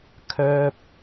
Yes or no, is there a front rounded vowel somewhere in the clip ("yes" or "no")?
yes